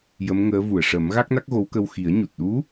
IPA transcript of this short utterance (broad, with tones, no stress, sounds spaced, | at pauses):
j ə˧˥ m ŋ əː˧˥ v u˨˩˨ ə̯ ʂ ə˨˩˦ m ɣ a˦˥ k̚ n a˦˥ k̚ ɣ o˧˥ w k ə˧ w x i˨˩˦ ə̯ ɲ u˨˩ t̚ ɗ u˧˥